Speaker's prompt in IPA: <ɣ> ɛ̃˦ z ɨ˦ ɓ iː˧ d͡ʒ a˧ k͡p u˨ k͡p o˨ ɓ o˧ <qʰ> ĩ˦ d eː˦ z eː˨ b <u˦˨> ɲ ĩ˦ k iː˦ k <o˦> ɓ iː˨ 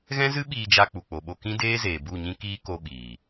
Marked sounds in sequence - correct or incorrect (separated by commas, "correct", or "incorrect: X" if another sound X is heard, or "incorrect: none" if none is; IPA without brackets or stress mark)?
correct, incorrect: k, correct, correct